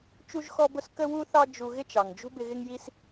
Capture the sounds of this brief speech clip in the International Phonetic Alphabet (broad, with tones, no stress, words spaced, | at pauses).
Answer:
t͡ʃu˥ʒxɔ˥bʊ˥s kə˥wu˥θɑ˥ d͡ʒu˧ ɣɪ˥t͡ʃɑ˩ŋd͡ʒṳ˥bɪ˧ ɣɪ˥ŋji˥s